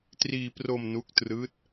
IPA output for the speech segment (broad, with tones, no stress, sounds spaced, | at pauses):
t r iː˧ p r o˧ m n u˦˥ k̚ t r ɯː˦˥ t̚